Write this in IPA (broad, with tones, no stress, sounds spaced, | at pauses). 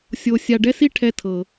sʲ o˧ sʲ a˧ ɖ ɛ˥ s i˥ ʈʰ ɛ˧ tʰ ɤ˩